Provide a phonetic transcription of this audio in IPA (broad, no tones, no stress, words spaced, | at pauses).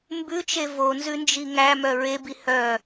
mbʉt͡ʃe vonzʉnd͡ʒi ŋæmœ ɹebi hœ